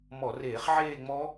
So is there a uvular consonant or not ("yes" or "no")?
yes